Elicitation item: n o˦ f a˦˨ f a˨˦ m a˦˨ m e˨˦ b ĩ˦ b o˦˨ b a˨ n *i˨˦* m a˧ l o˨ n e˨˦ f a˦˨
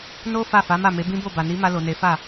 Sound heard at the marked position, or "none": i˨˦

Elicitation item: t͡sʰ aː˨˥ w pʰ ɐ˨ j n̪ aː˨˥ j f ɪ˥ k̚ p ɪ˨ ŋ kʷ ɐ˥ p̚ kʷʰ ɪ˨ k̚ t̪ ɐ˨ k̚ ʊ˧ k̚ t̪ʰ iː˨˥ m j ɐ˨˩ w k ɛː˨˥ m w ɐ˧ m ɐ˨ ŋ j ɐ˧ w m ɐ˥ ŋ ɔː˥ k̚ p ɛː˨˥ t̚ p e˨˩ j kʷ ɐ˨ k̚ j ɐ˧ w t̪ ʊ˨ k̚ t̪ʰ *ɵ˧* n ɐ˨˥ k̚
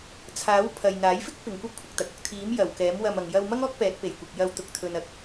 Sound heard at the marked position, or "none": ɵ˨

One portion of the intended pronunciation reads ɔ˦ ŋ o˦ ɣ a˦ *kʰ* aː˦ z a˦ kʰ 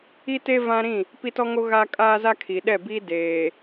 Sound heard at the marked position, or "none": kʼ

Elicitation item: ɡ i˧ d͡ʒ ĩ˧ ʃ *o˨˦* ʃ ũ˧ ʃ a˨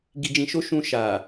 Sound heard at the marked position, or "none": o˦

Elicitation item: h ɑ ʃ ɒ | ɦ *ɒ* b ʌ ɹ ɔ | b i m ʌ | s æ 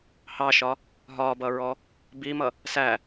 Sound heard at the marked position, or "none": ɒ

